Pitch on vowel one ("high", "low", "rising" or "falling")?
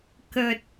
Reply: low